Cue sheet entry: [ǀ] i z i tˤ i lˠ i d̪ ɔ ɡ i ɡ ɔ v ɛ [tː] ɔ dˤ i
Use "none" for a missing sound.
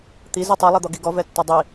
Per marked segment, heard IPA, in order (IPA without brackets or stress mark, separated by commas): t̪, tː